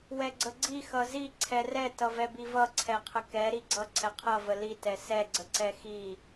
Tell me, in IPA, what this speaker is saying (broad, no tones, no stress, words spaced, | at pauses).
wɛɡ͡ǀəɡ͡ǀi xʌzi ǀʰɛrɛ tʌvɛbivʌ ǀʰɛqʰəkɛ ɾiɡ͡ǀʌ ǀʰɛqʰʌ vəli tɛsɛ ɡ͡ǀəǀɛxi